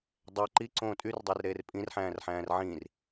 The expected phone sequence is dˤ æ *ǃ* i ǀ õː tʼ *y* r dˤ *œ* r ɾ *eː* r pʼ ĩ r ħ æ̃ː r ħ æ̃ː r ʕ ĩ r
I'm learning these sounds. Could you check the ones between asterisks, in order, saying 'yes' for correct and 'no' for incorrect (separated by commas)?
yes, yes, no, yes